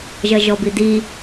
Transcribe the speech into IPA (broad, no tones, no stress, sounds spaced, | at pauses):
ʒ ɐ ʒ ɔ b i d i